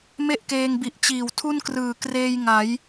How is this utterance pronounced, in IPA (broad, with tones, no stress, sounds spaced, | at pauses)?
m e˥˩ ʔ k eː˧ ŋ b i˨˩ ʔ t͡ɕ iː˨˩ w tʰ u˥˩ n k r ɯː˨˩ k r eː˧ j ŋ a˩˦ j